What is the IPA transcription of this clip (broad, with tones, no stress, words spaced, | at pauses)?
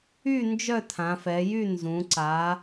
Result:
y˥˧ nd͡ʒœ˥˧tʰã˩˧fɛ˩˧jy˥˧ nzũ˩˧ ǀa˩˧